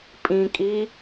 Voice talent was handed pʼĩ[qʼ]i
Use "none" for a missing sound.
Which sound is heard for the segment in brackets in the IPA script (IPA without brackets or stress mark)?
kʼ